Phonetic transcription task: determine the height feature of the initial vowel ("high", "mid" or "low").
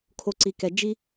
mid